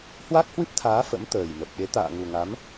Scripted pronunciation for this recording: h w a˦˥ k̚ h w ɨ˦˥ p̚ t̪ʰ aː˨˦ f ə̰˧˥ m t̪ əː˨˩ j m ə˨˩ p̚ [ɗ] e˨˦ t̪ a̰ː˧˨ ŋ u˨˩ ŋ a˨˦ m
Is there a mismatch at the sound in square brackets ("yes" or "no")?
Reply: no